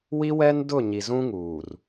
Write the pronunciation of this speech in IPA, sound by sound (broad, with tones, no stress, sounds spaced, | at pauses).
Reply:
w i˦ w ɛ˦ n d ʊ˦˨ ɲ i˨ z ũ˦ ŋ uː˨ r